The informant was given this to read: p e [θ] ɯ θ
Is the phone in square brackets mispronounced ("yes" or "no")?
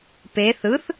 no